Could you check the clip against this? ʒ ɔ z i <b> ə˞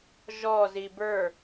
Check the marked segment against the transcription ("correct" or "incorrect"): correct